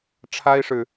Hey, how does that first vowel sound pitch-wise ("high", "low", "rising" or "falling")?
high